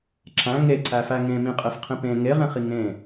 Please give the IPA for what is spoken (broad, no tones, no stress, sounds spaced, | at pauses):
ǁ æ̃ ŋ e ǀ æ f æ ŋ ẽ m ĩ qʼ e f qʰ ĩ p ẽ ŋ e ʁ ẽ χ i ŋ ẽ